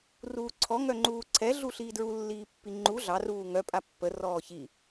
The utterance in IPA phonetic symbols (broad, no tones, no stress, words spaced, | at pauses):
ruːǀʰɔ ŋœŋ͡ǃuːǀʰɛ ɮuɬiːdɹu lːiːpːiŋ͡ǃu ɮɑ ruːŋœ pʼapːə rɔːçi